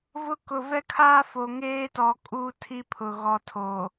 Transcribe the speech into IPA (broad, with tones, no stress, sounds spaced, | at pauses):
v ʊ˦ k ʊ˨ v ɛ˦ kʰ aː˦ f o˨ ŋ eː˦ t ɔ˨ kʼ uː˦ tʰ i˦ pʰ ʊ˨ ɣ ɔ˨ tʰ oː˨